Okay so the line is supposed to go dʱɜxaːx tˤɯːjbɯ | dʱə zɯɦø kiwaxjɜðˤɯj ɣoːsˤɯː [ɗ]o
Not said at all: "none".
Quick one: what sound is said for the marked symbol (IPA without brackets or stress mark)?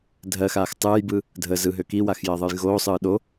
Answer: ɗ